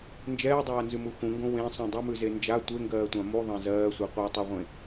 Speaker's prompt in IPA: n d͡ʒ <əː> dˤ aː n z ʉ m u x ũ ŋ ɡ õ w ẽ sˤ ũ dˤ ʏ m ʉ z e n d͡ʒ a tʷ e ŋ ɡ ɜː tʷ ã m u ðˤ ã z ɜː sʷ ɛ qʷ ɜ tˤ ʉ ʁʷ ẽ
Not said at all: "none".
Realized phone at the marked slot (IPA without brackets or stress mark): ɛː